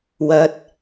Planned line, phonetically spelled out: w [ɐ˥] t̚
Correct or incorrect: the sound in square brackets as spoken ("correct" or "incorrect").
incorrect